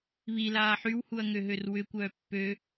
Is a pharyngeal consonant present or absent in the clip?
present